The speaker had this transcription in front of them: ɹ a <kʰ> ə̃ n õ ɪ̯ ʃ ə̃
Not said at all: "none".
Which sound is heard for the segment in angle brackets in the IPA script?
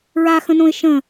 x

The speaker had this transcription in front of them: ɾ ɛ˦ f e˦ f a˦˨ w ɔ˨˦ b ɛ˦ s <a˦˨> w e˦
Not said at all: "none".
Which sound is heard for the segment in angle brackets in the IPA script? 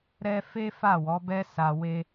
a˧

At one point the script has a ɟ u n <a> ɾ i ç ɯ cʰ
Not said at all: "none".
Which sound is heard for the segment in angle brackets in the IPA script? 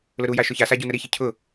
ə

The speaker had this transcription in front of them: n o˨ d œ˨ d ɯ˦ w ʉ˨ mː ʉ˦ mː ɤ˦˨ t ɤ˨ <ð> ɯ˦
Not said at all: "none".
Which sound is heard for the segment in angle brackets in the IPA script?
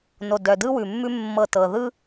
ð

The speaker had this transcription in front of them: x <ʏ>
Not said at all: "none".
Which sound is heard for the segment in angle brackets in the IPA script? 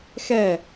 ɛ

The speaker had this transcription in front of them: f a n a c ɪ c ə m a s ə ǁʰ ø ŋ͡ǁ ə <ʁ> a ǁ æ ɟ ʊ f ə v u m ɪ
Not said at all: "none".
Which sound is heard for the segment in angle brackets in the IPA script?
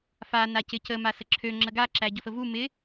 ɡ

